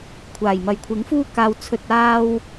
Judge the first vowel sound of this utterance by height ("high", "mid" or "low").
low